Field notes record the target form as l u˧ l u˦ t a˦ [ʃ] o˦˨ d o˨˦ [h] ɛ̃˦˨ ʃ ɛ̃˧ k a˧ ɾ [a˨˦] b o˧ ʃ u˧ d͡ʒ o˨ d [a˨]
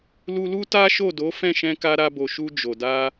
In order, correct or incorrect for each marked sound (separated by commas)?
correct, incorrect, incorrect, incorrect